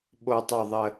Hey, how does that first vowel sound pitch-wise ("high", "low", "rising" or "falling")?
low